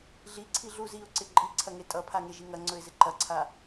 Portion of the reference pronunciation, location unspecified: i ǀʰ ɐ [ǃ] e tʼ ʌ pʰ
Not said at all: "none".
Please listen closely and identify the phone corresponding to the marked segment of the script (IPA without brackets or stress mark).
ŋ